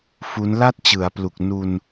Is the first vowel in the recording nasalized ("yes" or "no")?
no